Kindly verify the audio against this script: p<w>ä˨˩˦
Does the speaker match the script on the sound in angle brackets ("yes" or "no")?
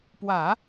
yes